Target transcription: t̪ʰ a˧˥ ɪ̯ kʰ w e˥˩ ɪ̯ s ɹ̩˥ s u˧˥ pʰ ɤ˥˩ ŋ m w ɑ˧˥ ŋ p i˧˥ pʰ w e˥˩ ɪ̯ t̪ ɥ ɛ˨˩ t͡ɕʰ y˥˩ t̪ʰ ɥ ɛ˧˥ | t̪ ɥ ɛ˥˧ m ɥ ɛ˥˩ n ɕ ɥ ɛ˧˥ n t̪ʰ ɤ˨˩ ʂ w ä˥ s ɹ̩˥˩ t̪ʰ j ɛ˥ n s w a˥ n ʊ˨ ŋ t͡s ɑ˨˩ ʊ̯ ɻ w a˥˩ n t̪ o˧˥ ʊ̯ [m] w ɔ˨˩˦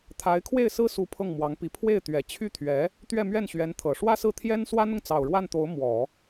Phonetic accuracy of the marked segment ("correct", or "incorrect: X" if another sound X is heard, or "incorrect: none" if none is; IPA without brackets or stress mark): correct